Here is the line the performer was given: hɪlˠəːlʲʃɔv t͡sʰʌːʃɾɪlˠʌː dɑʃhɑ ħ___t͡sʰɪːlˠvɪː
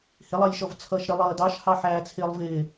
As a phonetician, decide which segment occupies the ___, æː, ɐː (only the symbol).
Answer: æː